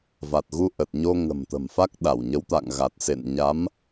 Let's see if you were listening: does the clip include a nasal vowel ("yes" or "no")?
no